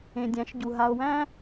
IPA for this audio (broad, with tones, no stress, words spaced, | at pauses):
ẽ˨dʲæ̃˨˦ʃɟu˨ ɦa˨o̯wæ̃˦